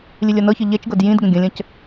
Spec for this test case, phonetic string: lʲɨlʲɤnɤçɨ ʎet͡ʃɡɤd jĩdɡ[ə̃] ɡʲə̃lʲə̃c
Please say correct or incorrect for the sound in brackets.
correct